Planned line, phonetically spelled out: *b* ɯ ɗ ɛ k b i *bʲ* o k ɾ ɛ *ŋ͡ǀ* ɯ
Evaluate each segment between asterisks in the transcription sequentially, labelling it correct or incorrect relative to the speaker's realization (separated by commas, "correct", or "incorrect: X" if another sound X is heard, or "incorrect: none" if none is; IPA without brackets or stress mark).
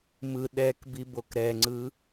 incorrect: m, incorrect: b, correct